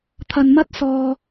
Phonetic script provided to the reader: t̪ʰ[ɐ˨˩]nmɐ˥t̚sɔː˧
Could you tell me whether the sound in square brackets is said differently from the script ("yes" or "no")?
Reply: yes